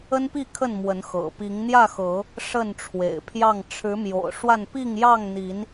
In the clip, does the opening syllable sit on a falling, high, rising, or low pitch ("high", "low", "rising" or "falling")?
high